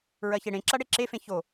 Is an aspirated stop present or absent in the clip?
absent